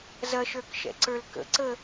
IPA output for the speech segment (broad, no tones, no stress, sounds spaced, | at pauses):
z ɐ ʃ ə˞ k ʃ ɛ̰ ǀ ə˞ l k ə̰ ǀ ə